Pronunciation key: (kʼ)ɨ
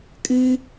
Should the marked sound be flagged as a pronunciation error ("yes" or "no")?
no